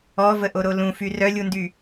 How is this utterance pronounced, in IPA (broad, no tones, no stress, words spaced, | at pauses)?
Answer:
ɔvəʔoɾo lũfy rœlʲundy